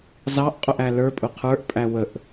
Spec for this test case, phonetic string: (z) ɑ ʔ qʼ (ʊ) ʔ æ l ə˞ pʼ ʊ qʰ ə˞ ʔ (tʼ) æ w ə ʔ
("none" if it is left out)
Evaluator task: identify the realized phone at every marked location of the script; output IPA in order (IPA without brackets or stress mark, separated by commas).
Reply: z, ʊ, pʼ